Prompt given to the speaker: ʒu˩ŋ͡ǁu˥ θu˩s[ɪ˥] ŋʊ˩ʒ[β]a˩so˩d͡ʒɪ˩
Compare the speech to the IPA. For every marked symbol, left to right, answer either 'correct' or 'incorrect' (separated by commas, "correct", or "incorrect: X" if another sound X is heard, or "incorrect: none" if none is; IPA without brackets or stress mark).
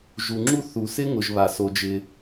correct, correct